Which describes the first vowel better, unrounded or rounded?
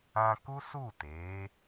unrounded